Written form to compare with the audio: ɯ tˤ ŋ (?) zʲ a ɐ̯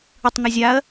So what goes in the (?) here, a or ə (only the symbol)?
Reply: a